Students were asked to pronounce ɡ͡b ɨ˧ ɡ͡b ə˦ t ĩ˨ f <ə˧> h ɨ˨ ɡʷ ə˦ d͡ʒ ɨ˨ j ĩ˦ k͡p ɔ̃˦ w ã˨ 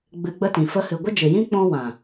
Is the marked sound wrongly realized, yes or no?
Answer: no